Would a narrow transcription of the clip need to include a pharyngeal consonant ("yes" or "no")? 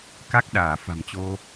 no